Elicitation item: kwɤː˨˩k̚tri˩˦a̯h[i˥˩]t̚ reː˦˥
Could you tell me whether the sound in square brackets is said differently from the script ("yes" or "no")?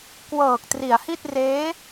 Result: no